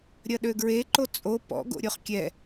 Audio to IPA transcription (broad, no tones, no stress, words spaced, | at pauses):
ɾʲɐɗøɡɹeǃo t͡sʼo pɔ̰ɡo̰ ɾʲoχkʲɛ